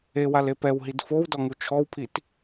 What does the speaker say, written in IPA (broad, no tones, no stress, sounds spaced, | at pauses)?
e w a l e p ɛ w ɦ i d f o w d ɔ ŋ u t͡ʃʰ ɔ w pʰ i t